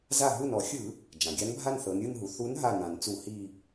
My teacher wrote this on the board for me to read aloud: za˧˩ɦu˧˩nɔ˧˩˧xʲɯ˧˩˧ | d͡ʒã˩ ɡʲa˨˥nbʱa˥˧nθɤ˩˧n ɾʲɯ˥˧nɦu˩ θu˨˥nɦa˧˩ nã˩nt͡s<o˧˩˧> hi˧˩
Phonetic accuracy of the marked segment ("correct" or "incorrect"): incorrect